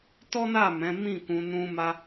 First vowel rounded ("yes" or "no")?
yes